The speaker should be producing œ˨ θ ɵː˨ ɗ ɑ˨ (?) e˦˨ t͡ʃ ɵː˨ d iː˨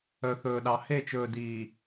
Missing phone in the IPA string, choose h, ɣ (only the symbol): h